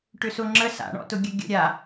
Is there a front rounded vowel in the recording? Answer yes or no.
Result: yes